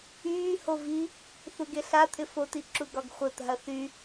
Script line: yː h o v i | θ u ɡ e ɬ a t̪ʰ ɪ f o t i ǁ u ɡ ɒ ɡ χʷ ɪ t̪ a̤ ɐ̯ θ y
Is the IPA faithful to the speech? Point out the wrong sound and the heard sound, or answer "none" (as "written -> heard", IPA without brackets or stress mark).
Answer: none